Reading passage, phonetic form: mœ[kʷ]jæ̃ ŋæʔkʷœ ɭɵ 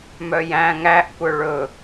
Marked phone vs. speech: incorrect: none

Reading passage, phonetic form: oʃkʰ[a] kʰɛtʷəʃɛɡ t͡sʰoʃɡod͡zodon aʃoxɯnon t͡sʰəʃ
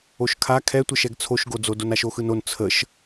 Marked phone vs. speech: correct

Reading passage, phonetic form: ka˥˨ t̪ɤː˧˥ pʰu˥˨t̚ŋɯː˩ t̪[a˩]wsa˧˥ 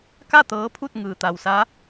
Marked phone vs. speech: correct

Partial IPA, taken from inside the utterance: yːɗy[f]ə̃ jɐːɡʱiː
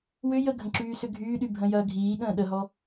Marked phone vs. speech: incorrect: bʱ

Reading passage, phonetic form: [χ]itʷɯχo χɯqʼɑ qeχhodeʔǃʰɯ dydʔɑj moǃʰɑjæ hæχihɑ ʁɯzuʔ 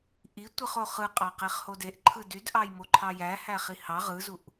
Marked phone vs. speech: incorrect: ʔ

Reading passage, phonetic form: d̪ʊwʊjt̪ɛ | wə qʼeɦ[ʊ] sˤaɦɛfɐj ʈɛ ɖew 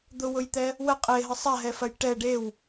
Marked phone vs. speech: incorrect: ə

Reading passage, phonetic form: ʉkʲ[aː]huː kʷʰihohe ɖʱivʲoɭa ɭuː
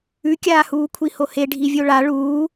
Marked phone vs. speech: correct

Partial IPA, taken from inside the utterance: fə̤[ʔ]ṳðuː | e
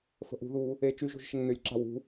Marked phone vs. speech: correct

